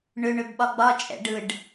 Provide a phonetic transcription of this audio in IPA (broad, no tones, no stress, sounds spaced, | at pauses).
ɳ ʏ ɳ ʏ b ɓ ɒ ɡ͡b ɒ t͡ʃʼ ɛ̰ ɖ ɯ ɖ